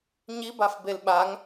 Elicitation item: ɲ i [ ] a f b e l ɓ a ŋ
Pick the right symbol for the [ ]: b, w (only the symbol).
b